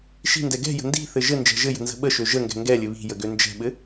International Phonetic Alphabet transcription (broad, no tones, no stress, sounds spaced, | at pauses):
ʃ i̤ n d ɛ ɡ ɛ̤ j ə̤ n d i̤ θ ɘ ʒ ɘ n d͡ʒ ɛ̤ ʒ ɘ j ə̤ n z ə̤ ɓ ə ʃ ø ʒ ə ŋ ɡ ɛ̤ ŋ ɡ ɛ lʲ ɘ β i̤ j ə ɡ ø n d͡ʒ ɛ̤ ɓ ɘ